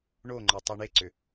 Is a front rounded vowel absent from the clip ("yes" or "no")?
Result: no